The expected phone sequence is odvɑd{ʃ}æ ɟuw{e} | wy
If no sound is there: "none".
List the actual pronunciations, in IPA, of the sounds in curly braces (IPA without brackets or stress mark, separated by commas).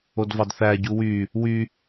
θ, y